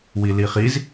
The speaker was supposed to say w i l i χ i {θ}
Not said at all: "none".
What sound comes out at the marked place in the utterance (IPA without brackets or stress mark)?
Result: z